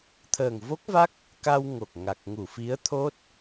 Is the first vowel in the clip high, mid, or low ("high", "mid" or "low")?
mid